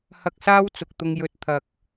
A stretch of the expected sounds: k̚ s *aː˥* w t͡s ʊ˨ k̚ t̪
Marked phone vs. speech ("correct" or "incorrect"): correct